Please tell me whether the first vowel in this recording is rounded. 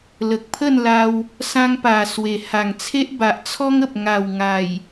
no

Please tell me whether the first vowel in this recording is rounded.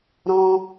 yes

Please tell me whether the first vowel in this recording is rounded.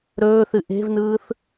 yes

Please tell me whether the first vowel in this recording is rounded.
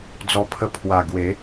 yes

